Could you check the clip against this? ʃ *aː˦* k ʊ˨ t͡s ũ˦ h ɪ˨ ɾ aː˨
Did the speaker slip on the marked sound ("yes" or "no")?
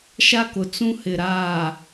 yes